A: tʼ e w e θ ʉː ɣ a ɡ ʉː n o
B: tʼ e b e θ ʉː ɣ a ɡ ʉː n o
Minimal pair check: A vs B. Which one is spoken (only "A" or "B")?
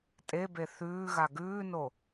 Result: B